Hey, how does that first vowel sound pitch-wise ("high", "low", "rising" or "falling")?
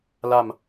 falling